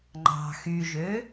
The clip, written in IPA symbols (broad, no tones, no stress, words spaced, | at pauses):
ŋ͡ǃɑ̤ xyʒø